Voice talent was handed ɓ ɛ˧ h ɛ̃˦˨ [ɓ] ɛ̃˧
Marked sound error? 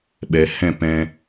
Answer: yes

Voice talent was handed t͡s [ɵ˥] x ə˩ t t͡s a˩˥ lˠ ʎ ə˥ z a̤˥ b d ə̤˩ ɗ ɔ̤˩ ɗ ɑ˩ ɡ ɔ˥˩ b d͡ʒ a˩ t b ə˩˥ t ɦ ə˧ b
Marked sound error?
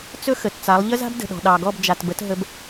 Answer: no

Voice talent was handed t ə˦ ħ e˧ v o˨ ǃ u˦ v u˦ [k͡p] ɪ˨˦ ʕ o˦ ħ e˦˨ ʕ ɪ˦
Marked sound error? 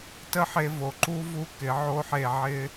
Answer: yes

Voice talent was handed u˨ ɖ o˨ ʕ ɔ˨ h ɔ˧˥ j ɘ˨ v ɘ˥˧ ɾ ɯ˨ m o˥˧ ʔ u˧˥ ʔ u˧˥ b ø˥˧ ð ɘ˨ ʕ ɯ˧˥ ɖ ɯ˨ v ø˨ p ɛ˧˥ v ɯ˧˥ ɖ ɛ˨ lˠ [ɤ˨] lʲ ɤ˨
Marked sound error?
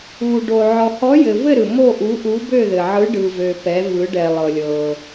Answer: no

